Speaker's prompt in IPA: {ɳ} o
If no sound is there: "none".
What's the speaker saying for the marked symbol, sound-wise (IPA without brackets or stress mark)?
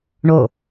ɳ